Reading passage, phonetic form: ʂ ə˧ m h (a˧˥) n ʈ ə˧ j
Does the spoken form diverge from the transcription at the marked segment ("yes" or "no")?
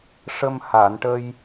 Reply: yes